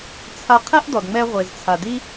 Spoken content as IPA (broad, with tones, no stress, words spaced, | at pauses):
t͡sʰa˧ qʰɛ˥ʔdɔ˩dŋ͡mɛ˧ ʁʷe˩zt͡sʰa˩di˥